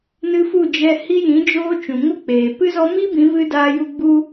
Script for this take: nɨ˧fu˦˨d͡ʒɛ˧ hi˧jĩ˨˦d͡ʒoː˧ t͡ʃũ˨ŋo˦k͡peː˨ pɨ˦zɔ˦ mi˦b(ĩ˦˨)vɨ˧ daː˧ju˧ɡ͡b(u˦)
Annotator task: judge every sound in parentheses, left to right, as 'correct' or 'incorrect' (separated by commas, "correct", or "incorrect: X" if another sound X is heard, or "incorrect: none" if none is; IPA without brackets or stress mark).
incorrect: ĩ˨˦, correct